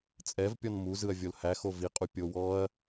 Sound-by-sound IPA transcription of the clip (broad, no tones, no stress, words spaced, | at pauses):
t͡sʼɛv pʲɔnmu zɯɐ̯vʲolhæ xovi qʼupʲowɔɐ̯